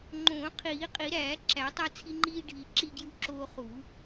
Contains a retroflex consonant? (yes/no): yes